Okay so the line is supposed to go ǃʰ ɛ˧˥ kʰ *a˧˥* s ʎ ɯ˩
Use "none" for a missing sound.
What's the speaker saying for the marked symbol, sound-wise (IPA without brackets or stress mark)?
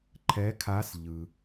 a˧˥